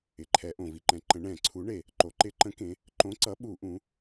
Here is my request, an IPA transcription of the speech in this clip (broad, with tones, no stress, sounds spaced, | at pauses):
ɪ˩ ǃʰ ɛ˩˧ ʔ õ˩ v i˩ ǃ ɛ̃˩˧ ǃ ə̃˩˧ ɳ ɛ̃˧˩˧ ǀʰ u˨˥ ɳ e˩ | ǃ o˩˧ ǃ ɪ˧˩˧ ǃ ə̃˨˥ k ẽ˩˧ | ǃ õ˨˥ ǀ ʌ˨˥ ɓ u˧˩˧ ʔ ũ˩˧